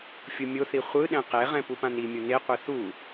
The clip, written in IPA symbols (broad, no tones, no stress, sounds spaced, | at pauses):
fʲ u mʲ o θ i χʷ ɯ ɗ ɛ̃ q e ʁ ɛ̃ p u p ã n i mʲ o n e qʷ ɛ θ u